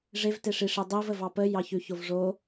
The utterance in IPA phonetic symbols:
ʐ e v t e ʂ i ʂ i dˤ i v ə v ɑ p ə j ɑ ç ʉ ç o v ʐ o

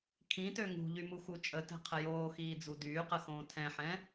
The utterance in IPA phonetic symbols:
kʰ ĩ t ø ŋ ṳ ʎ y m u x u t͡ʃʼ ə t ɛ̤ qʰ ə j oː x iː d͡z u d yː q ə x õː tʰ ɛ̃ ħ ɛ̃

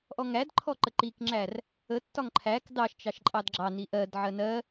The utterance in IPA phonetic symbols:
ʔ ɔ ŋ æ d ǃʰ ɔ ǃ ə ǃ i k ŋ͡ǁ æ r | ə tː ɒ ŋ ǃʰ æ k d ɑ ʃ t͡ʃ ɑ ʃ ǃʼ ɑ d ɡ͡ǁ ɑ n i ʔ ɜ d ʕ ɜ n ɜ

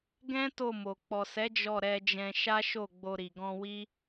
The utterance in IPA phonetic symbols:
ɡ ɛ̃˦ t o˦˨ m o˨ k͡p ɔ˨ s ɛ˨˦ d͡ʒ ɔ˦˨ ɾ ɛ˧ d͡ʒ ɛ̃˧ ʃ a˦ ʃ o˦˨ ɡ͡b o˧ ɾ i˨ ɡ ɔ̃˧ w i˦

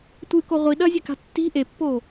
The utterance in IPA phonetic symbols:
tʷ ɨ k o ʁʷ i ɗ ɐ zʲ ɘ k a̤ tː i̤ ʔ e pː o

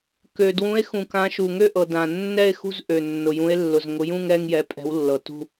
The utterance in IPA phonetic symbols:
k ø˩ d w ũ˩˧ e̯ x ũ˩ k ã˩˧ ʃ u˩ ŋ ø˦˨ ʔ ɤ˩ d ã˩ nː ɛ˦˨ e̯ x ṳ˦˨ z ʔ ø˩ nː ʊ˩ j ũ˩˧ e̯ lː ʊ˩ z ŋ ʊ˩˧ j ũ˦˨ ŋ ɛ˦˨ ŋ j ɛ˩˧ pʼ ɛ̤˩˧ w lː ɤ˩ t ṳ˦˨

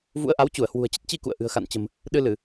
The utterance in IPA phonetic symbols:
v ṵ˧˥ ə̯ ʔ a˨˦ w t͡ɕ u˧˩ ə̯ h w ṳ˨˩ ə̯ t͡ɕ ə˦˥ t̚ t͡ɕ i˧ k ṵ˧˨ ə̯ ʔ ɨ̤˨˩ ə̯ x a̰˧˨ n t͡ɕ ə̤˨˩ m | ɗ ɨ˧ l ɨ˧˩˨

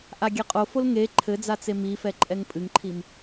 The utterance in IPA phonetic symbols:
ʔ a ɡʲ ɛ qʼ o f o l ŋ e ǃʰ ɘ d͡z a t͡s e m i f ɛ ǃʼ ɛ ŋ pʼ ɨ ŋ ǃʰ i m

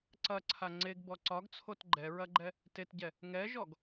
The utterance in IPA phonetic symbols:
ǀ ɐ ǀʰ a ŋ͡ǀ e ɡ b ɔ ǀ ɒ ɡ t͡sʰ o t ɡ͡ǃ ɛ ɹ ɐ ɡ͡ǃ ɛ | t e t ɟ ɛ | ŋ ɛ ʒ ɔ ɡ

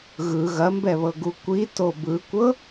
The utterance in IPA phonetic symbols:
ɣ ɯ ɣ ɐ m b ɛ β ɤ ɡ u kʷ i t o b ɯ kʷ ɤ

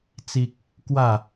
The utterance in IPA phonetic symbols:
t͡s i˦ k̚ | k w a˥˧

